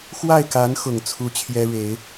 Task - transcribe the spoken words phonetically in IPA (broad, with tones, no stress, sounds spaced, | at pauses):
x w a˥˩ ɪ̯ k a˧˥ n x ʊ˨˩ ŋ t͡sʰ u˥ t͡ɕʰ j ɛ˥ ɻ e˨˩˦ ɪ̯